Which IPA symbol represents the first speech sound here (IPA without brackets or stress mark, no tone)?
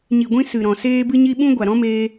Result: ɲ